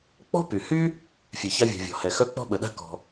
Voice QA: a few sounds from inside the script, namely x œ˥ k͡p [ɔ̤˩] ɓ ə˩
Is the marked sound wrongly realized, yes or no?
yes